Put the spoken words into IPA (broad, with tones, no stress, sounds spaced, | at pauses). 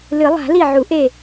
l ɨ˨˩˦ lˠ a̤˨˩˦ l i˧˩ ʕ u˨˩˦ ʔ e˧˩